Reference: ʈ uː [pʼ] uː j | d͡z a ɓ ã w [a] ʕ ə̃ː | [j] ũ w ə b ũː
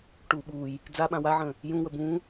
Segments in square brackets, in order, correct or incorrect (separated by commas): incorrect, correct, correct